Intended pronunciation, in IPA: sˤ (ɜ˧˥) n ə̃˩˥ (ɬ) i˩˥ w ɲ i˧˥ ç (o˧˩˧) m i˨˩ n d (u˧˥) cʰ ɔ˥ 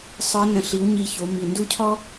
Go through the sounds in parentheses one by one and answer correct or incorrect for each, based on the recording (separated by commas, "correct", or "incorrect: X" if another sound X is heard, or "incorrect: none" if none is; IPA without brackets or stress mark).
incorrect: ə˞˧˥, correct, incorrect: o˩˥, incorrect: u˥